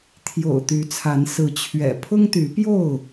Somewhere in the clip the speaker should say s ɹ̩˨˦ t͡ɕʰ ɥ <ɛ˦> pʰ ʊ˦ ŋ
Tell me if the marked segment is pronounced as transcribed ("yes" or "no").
no